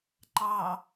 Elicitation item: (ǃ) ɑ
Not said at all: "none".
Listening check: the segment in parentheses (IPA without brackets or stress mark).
ǃ